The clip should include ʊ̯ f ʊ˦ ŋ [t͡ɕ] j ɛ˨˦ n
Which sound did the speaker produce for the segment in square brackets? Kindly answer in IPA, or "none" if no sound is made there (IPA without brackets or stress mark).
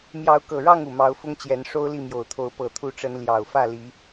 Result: t͡ɕ